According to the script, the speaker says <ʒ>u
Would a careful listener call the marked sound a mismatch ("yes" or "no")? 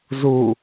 yes